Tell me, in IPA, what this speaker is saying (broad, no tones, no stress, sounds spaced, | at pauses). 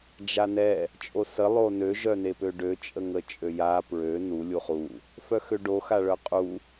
d͡ʒ a n ɛ | t͡ʃʼ o s ə lˠ o n ø ʒ œ n e p ø ɖ ø t͡ʃʼ ə ŋ ə t͡ʃʼ ø j a p ɹ ø n u lʲ u χ u | f œ x ø ɖ o x a ɭ œ qʼ u